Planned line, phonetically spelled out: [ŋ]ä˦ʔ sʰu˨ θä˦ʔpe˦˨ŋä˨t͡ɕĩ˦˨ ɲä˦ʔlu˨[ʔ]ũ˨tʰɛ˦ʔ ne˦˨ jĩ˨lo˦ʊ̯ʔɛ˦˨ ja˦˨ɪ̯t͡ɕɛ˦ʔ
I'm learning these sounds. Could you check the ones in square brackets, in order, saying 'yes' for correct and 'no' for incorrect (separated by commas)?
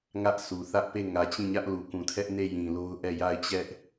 yes, no